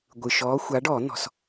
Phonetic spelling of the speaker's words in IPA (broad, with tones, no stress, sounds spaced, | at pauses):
ɡʷ ɯ˨ ʃ ɔː˧˥ xʷ a˧˥ ɖ ɔː˨˩˦ n̪ ɔ̤˨ s